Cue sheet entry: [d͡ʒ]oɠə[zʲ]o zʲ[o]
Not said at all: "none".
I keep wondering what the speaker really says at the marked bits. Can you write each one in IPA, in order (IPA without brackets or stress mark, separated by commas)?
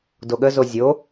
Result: d, z, o